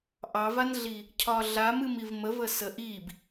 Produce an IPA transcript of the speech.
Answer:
ʔ ɑ v a n ɮ i | cʰ ɒ ɮ a m ɨ m i v m ə v ə s ə ʔ i b

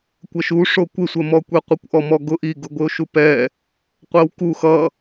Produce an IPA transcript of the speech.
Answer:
kʷ ʌ ʃ u ʂ o kʷ ɪ sʷ ɜ m ɔ kʷ e qʷ e kʷ ʔ ɔ m ɔ ɡ ʊ ʔ i ɡ ʊ ɡʷ ɪ o̯ ʃ u p ɛ | qʷ ɜ w k u x ʌ

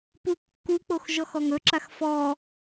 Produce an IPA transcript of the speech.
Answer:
p u kː u k͡p o x ʒ ɔ x ɔ ŋ ɵ ǁ a x f ɔ

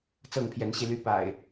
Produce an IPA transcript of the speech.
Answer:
t͡s ɤ˥˨ ŋ pʰ j ɛ˨˦ n ɕ i˧ l y˦ p a̰˨˩ ɪ̯

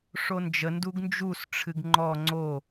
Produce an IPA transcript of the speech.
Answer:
ʂ o n d͡ʒ ə n d u ɡ n d͡ʒ u s ʈ͡ʂʰ ɨ ɡ ŋ͡ǃ ɔ ŋ͡ǀ o

